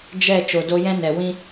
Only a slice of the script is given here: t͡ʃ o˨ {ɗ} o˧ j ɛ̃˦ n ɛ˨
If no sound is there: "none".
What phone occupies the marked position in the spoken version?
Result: d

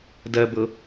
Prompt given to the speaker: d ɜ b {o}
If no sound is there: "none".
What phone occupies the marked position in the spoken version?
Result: ɤ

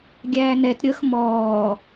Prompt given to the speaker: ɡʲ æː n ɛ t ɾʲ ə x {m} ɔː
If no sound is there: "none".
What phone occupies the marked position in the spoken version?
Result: m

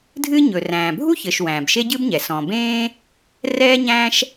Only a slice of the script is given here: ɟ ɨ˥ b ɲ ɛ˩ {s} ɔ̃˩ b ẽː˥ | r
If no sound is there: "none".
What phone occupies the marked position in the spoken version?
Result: s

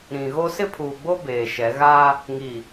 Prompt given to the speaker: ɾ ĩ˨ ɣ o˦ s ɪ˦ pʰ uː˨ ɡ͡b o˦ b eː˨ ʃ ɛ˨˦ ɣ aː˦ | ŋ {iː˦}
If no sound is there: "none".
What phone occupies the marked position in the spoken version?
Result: iː˨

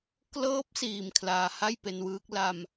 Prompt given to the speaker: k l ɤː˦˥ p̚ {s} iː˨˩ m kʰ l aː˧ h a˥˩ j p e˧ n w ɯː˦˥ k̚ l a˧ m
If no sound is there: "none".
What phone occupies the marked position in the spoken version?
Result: s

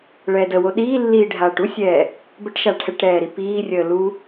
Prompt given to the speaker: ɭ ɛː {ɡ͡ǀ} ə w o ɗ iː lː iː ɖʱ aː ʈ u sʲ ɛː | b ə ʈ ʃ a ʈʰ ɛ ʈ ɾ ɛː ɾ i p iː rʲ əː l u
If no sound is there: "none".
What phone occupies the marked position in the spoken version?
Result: d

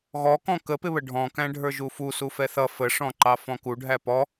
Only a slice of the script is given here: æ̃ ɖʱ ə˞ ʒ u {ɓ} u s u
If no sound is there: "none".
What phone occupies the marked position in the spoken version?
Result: f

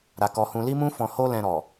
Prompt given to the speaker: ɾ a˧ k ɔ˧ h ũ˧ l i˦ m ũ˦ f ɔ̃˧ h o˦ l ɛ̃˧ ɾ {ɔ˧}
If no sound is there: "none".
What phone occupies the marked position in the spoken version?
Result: ɔ˨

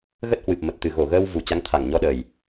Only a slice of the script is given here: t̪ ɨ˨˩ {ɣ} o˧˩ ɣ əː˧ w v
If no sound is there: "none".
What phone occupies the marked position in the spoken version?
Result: ɣ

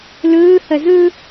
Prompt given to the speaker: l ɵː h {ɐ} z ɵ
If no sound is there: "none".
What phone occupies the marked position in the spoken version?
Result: ɐ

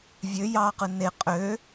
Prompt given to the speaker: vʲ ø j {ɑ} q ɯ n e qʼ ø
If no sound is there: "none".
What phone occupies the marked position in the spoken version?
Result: ɑ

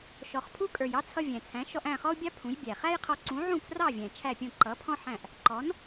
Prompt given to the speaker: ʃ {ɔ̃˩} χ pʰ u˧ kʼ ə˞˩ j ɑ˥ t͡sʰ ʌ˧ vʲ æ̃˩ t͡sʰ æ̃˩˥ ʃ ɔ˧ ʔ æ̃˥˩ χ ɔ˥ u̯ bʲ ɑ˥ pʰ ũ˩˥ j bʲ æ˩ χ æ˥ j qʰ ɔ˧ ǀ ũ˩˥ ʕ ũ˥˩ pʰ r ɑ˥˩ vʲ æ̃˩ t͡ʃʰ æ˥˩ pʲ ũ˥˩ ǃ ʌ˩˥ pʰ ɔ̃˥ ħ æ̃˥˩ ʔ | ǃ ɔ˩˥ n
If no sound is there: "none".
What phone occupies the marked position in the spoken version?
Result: ɔ˩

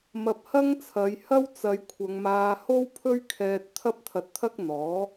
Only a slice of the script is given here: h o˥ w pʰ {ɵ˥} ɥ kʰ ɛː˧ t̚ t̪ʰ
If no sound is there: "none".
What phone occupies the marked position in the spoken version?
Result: ɵ˥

